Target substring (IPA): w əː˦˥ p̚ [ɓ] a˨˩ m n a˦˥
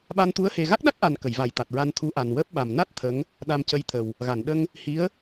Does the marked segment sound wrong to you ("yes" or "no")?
no